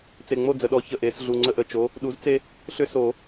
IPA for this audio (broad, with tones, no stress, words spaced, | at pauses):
t͡se˨˩ŋ͡mo˥˩d͡zə˨˩ɗɔ˨˥ çə˨˩ʔ e˨˩˦sɮu˨˩ŋ͡ǀə˥˩ʔə˥˩ t͡ʃo˨˥ | ɗu˨˥z t͡se˦ | ɬʏ˦so˨˩˦